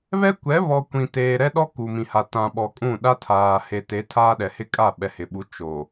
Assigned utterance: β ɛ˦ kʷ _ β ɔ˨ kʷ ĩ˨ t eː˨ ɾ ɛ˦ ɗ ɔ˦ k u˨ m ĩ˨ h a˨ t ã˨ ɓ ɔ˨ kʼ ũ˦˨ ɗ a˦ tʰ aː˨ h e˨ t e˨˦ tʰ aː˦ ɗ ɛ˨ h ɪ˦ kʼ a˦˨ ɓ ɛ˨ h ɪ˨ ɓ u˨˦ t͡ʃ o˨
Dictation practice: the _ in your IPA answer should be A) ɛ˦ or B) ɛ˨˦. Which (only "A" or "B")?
B